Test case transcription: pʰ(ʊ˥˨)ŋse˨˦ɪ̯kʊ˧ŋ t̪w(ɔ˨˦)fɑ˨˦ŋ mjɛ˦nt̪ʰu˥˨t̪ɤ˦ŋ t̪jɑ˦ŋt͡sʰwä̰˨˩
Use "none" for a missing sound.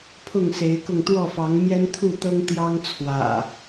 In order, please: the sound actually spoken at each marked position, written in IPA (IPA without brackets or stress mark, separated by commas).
ʊ˥˨, ɔ˥˨